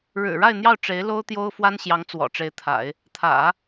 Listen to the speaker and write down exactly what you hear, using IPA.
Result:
ɻ ɻ̩˨˩ ɻ a˥˧ ɪ̯ n̪ j ɑ˥˩ ʊ̯ ʈ͡ʂ e˧˥ ɪ̯ l o˥ ʊ̯ t̪ j o˥ ʊ̯ f w a˥ n ɕ j ɑ˧˥ ŋ t͡s w ɔ̰˨˩ ʈ͡ʂ e˧˥ ɪ̯ t̪ʰ a̰˨˩˦ ɪ̯ | t̪ʰ ä̰˨˩˦

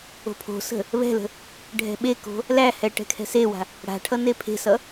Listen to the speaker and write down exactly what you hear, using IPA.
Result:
o̤ pʰ o̤ s ə̤ | β ɛ̤ l ə̤ | ɖʱ ɛ̤ ɓ e k o̤ | l æ h ɛ ʈ ɛ̤ kʰ ɛ̤ s e w a̤ | ɽ a̤ ʈʰ ʌ n e pʰ e̤ s ʌ

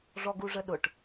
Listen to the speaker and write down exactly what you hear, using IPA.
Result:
ʐ ɔ ɡ u ʐ ə ɗ ʊ ʈ

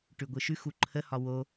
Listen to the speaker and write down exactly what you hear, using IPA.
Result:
ʈ ʉ ɡʷ ɯ ʃ ʉ x u ǃʰ ə h ɒ w o

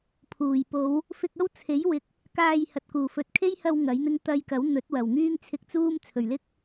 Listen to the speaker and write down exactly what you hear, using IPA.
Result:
pʰ uː˨˩ j p o˨˧ w | f ɪ˧ k̚ ɐ˥ w t͡sʰ e˨˥ j w ɪ˨˥ k̚ | k aː˧ j h ɐ˨ t̚ k uː˨˩ f ɵ˨ t̚ kʰ e˥ j h ɐ˧ w ŋ ɐ˨˥ j n̪ ɪ˥ ŋ t̪ ɐ˧ j k ɐ˨˥ w n̪ ɵ˨˥ t̚ w ɐ˨˩ w ŋ yː˥ ŋ t͡sʰ ɪ˧ k̚ t͡s uː˥ m t͡sʰ ɵ˨˩ ɥ l ɪ˥ k̚

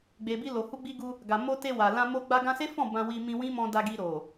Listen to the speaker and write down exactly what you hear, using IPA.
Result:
ɡ͡b e˨ b i˧ l o˨ h u˧ ɡ͡b i˧ ɡ u˧ | ɡ a˨ m o˧ t e˧ w a˨ l ã˧ m o˧ ɡ͡b a˧ ɡ ã˧ s e˦ f ɔ̃˦˨ b ã˧ w i˧ m ĩ˧ w ĩ˦ m ɔ̃˧ d a˧ ɡ i˧ ɾ o˨

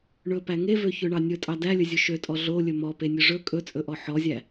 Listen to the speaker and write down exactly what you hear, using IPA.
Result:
ɳ ɵ p æ ŋ e v ø ç ø ɳ ɑ nʲ ɵ tʼ ɑ d æ lʲ ɵ zʲ ɵ ʃ ø tʼ ɔ ɮ o lʲ ɵ m ɔ p e nʲ ɵ ʐ ɵ kʼ ɵ t͡sʼ ɵ ʔ ɔ ħ ɔ zʲ æ

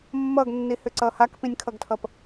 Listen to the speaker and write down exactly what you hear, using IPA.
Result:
mː ʌ ɡ nː i h ʏ ǀ ʌ h a k p ĩ nʲ kʰ ʌ ɡ tʰ ʌ p

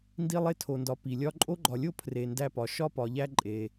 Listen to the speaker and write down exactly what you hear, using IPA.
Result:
n d i˦ lˠ e˦ tʰ o˨ n d ɒ˨ p i˩ lʲ ɒ˦ ǃʼ o˥ ɡ͡ǃ ɒ˨ lʲ o˥ pʰ r e˩ n d æ˦ p ɒ˩ ʃ ɒ˥ p ɒ˩ ʎ æ˦ ǃʼ e˩

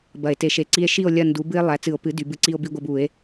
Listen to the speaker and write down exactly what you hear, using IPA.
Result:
b ɐ˨˩˦ e̯ t e˩˥ ʃ e˨ ǀ i˦ e̯ ʃ i˥˨ o̯ lʲ ɐ˥˨ n d u˩˥ b ɨ˦ e̯ lˠ æ˩˥ t͡s ɨ˨˩˦ o̯ p ɨ˩˥ d y˩˥ b ɨ˦ ǀ i˦ o̯ b i˦ ɡʷ ɐ˦ b u˨˩˦ e̯

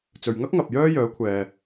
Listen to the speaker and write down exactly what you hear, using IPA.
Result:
t͡s ɵ˨ ɥ ŋ ɐ˥ k̚ ŋ ɐ˨ p̚ j œː˥ j œː˨˥ kʷʰ ɛː˨

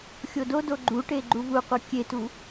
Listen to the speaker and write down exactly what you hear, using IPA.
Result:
xʲ o d o d o ɡ͡ǃ u ʈ e ɡ͡ǃ u v u qʷ ɜ kʲ e t u

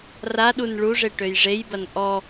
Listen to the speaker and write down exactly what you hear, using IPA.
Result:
r a ɗ u n ɭ u ʐ e ʈ ø j ʐ e j b ɐ n ʔ ɔ

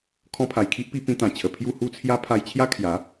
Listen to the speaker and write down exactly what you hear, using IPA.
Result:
kʰ ɔ̃˧ pʰ a˨˩ j kʰ i˦ ʔ p i˧ p ĩ˧ t̪ ã˨˩ t͡ɕʰ ə˨˩ pʰ j u˥˧ h u˥˧ t͡sʰ j a˦ pʰ a˧ j t͡ɕʰ j a˦ kʰ j a˨˦

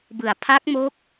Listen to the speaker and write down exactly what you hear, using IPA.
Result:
b ɯ˩˦ a̯ pʰ a˦˥ k̚ m o˦˥ k̚

